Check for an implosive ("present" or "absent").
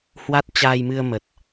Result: absent